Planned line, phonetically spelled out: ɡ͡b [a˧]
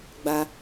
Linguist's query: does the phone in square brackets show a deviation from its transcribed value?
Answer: no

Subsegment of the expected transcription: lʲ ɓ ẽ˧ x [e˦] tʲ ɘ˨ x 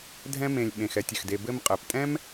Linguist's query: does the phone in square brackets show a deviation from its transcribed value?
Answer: yes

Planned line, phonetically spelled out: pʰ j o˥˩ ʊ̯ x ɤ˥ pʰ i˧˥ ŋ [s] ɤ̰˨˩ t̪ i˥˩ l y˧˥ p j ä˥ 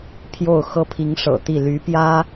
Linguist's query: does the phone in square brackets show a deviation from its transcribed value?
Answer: yes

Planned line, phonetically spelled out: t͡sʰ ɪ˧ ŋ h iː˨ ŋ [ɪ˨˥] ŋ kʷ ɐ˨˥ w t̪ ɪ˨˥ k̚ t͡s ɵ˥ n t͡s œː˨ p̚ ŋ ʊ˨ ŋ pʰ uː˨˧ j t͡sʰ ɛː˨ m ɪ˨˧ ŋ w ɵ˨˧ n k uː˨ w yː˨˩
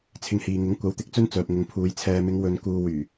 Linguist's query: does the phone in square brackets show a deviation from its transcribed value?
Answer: no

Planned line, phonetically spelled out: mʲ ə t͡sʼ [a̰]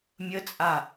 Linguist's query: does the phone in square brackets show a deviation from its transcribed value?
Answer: yes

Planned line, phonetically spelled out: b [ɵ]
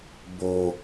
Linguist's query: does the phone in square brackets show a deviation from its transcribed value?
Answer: yes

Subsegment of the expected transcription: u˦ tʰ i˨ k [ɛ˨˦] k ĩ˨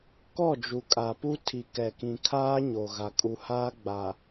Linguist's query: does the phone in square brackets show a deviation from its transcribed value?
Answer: yes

